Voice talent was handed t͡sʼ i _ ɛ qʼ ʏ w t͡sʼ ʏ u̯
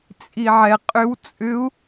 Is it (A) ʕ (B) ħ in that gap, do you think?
A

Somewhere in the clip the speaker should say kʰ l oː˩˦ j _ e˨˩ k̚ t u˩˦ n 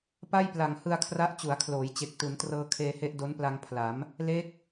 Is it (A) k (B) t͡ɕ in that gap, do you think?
B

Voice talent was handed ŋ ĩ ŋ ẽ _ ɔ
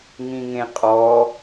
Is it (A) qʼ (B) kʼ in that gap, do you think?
A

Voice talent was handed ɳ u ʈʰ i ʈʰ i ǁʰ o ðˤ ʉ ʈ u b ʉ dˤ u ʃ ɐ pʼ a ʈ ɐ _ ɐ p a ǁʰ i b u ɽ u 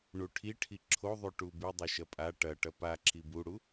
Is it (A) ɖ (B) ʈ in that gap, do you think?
B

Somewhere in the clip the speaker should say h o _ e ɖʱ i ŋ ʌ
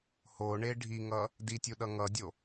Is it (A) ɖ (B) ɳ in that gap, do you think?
B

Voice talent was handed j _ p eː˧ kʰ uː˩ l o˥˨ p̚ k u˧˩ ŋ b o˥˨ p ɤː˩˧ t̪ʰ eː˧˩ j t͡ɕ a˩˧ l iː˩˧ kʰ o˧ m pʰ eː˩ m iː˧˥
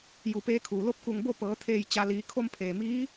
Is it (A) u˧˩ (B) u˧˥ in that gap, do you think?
A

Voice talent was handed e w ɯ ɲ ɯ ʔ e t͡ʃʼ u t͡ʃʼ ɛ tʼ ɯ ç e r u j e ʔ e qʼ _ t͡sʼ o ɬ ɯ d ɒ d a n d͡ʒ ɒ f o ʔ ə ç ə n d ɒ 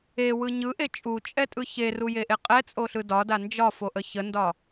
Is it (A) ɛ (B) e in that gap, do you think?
A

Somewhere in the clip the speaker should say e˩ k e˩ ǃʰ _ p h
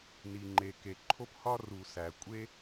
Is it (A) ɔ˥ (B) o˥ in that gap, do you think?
B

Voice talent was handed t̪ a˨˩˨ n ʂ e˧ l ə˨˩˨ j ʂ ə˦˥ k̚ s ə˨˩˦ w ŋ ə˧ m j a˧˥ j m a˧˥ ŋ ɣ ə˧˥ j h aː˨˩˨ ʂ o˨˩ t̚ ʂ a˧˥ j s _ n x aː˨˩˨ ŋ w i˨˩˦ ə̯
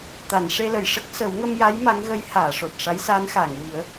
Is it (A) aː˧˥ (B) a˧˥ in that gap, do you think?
A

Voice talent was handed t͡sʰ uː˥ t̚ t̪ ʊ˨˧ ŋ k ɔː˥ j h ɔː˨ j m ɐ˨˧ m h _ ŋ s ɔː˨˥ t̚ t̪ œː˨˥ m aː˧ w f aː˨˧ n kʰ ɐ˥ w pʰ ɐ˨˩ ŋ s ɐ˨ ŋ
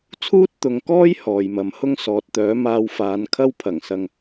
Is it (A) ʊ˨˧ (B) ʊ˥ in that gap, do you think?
B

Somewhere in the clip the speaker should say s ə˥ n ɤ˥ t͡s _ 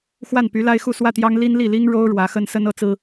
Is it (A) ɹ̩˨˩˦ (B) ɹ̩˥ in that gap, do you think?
B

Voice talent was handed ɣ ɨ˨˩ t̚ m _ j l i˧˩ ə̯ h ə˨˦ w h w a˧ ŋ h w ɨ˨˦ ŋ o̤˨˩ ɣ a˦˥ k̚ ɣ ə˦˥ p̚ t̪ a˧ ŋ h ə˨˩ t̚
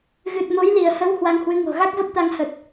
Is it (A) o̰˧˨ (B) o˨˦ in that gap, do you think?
B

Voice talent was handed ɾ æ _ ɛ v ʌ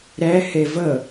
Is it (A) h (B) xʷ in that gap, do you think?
A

